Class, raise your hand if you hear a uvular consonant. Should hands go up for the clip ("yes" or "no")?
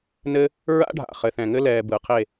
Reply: yes